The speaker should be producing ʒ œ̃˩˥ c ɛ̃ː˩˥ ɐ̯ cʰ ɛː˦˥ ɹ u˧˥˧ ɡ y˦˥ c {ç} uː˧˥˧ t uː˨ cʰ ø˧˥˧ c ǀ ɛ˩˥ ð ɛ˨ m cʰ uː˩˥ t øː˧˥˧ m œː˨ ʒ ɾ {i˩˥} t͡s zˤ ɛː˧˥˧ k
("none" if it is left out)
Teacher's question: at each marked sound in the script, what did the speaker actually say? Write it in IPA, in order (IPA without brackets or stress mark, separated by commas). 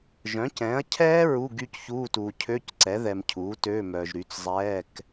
ç, y˩˥